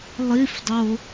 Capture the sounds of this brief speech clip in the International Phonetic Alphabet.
lˠ i f dˤ o

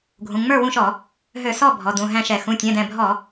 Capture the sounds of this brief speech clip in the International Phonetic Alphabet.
ɡʱ ũ˩˧˩ ŋ͡m ə˞˥˩ w ũ˥˩ ʃ ɔ˧˩˧ | ɦ ø˧˩˧ s ɔ˥˩ bʱ ɔ˩˧˩ d ũ˧˩ ɦ æ̃˥˩ ʃ ɛ˧˩˧ x ũ˩˧˩ tʲ ɛ̃˩˧˩ d ɛ̃˧˩ bʱ ɔ˧˩˧

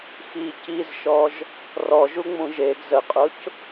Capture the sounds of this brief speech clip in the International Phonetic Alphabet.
x i c i z ʃ ɔ ʒ | r ɔ ʒ u ŋ͡m ũ ʒ e ɡ z ə qʼ ʊ c

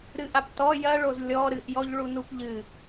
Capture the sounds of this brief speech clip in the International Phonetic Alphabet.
ɾ ɨ ʔ a p t ɔ j ɐ ɭ o z lʲ ɔ ɾ ɨ ʔ j ɔ ʎ ɭ u n u p ʎ ɨ

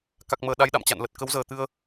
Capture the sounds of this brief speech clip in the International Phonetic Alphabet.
k a˨˩ k̚ m əː˨˩ ɗ a˨˦ j ɗ a̰˧˨ m t͡ɕ a̰˧˨ n l ə˨˩ t̚ k ə˨˦ w z əː˨˩ t̪ ɨ˧ ə̯

